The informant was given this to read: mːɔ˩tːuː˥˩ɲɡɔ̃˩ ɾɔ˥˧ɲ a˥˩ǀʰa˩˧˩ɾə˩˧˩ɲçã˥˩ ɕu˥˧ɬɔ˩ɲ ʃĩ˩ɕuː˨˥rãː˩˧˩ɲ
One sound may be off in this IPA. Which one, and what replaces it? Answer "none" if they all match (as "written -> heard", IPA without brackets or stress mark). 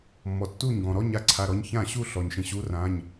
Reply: ə˩˧˩ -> ɔ˩˧˩